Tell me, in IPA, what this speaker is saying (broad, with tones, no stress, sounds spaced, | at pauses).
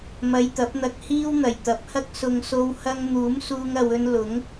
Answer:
m ɐ˧ j t̪ ɐ˨˥ p̚ n̪ ɐ˧ k̚ h iː˥ w n̪ ɐ˨˩ j t̪ ɐ˨˥ p̚ h ɐ˥ k̚ s ʊ˨ ŋ s o˧ w h ɐ˥ ŋ n̪ uː˨˥ m s uː˧ ŋ ɐ˨ w ɵ˧ n l ʊ˨˥ ŋ